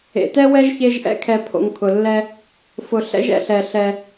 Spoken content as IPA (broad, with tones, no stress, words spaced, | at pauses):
ḛ˨tɛ˥wɛ˥ʒ çe˦ʒʔɛ̰˦kʰɛ˨ pʰo̰˨ŋkʰʊ˩lːɛ˦ | fʊ˨ ɬɛ̰˥ʒ ɛ̰˦ɬɛ˨ ɬɛ˨